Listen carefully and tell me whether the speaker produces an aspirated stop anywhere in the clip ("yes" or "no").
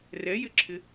yes